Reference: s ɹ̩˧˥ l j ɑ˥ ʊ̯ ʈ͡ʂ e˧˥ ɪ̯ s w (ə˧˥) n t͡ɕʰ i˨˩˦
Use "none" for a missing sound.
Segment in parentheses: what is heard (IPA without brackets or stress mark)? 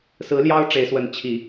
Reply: ə˧˥